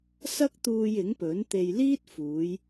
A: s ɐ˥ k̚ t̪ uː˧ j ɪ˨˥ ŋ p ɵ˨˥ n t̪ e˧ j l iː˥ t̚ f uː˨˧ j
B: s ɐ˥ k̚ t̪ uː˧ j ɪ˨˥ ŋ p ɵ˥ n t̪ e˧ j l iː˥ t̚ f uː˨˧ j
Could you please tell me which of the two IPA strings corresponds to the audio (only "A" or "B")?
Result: A